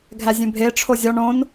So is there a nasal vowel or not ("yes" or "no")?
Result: yes